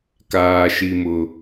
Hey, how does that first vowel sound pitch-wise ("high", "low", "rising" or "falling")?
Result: high